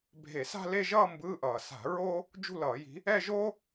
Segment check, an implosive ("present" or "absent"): absent